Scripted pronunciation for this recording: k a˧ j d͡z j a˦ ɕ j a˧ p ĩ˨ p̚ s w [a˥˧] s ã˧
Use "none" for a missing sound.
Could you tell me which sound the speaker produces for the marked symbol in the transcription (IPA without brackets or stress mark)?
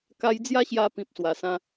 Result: a˨˩